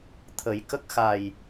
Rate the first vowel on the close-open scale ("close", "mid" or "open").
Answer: mid